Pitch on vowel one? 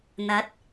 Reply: rising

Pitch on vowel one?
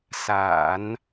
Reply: low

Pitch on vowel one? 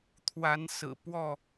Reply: rising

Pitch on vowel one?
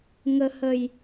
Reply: low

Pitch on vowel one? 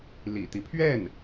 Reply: low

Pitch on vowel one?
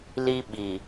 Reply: high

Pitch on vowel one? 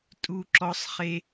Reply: high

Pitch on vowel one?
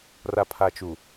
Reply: low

